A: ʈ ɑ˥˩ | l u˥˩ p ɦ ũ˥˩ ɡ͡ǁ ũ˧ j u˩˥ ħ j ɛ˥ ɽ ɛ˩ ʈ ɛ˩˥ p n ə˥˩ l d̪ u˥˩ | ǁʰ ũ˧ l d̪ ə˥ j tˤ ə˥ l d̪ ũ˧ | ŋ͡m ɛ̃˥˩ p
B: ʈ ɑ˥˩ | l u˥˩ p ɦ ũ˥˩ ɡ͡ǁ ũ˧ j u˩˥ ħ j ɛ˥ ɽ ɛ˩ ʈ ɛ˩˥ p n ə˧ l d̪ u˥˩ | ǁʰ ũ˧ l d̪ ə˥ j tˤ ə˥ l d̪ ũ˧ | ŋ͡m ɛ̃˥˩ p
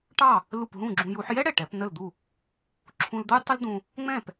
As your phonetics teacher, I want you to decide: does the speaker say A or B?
A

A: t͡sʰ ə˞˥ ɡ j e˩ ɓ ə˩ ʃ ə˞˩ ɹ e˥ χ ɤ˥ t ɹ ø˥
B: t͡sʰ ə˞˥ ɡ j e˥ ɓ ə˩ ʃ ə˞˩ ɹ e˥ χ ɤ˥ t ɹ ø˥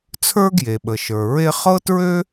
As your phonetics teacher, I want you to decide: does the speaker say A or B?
A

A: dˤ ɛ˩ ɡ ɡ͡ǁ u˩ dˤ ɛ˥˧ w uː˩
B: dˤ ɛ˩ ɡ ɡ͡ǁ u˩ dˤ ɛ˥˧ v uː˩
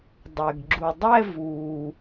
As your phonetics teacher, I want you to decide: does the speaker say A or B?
B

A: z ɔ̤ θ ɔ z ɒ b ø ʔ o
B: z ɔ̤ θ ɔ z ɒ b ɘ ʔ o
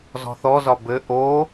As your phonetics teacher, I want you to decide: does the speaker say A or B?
B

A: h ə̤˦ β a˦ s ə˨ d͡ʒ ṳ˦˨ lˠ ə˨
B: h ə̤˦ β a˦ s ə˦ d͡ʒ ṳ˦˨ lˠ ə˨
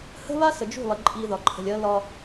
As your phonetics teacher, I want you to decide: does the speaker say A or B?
A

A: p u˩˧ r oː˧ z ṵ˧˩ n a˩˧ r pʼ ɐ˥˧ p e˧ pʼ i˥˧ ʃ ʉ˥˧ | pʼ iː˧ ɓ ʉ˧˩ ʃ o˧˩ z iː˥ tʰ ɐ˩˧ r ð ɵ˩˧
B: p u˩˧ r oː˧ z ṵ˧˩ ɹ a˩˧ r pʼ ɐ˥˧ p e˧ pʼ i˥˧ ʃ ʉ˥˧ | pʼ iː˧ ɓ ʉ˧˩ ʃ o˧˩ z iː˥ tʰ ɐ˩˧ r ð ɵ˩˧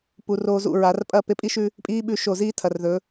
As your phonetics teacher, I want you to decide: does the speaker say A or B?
B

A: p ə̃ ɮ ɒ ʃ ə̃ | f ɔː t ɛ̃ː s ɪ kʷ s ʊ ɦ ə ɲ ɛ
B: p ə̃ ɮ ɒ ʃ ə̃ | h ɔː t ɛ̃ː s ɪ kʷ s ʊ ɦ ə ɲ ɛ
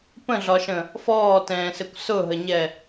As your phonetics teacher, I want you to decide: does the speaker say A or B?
A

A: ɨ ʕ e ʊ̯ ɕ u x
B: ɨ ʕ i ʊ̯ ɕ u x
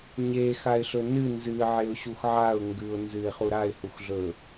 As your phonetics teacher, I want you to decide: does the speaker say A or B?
A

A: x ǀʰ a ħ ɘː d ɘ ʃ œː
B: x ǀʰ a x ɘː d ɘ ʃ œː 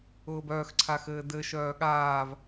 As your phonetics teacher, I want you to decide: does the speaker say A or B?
B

